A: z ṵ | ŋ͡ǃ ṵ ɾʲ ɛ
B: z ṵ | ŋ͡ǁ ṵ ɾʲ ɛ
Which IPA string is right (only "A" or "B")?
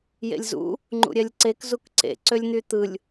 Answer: A